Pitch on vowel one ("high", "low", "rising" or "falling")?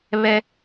high